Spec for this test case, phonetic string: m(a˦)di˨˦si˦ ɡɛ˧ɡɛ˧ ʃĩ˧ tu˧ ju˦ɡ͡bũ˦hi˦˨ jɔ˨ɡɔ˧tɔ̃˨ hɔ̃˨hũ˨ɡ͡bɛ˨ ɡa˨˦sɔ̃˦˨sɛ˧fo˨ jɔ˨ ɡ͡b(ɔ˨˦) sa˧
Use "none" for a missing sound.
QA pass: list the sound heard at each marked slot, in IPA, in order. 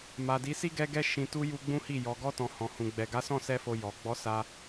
a˨, ɔ˨˦

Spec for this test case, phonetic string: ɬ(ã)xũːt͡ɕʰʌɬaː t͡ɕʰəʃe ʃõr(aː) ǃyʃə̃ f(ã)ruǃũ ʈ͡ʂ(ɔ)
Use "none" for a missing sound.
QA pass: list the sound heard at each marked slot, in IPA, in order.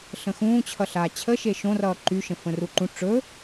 ə̃, ʌː, ə̃, ɵ

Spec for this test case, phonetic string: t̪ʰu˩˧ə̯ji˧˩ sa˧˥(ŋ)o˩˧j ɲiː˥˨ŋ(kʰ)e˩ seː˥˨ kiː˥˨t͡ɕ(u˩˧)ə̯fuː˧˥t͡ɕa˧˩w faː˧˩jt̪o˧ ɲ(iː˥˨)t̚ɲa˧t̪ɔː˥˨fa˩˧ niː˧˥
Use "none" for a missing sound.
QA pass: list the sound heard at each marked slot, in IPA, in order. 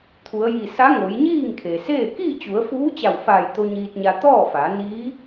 ŋ, kʰ, u˩˧, iː˧

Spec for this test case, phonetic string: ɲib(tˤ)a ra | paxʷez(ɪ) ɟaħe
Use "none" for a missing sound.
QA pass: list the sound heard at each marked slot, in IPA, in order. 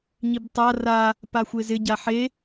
tˤ, ɪ

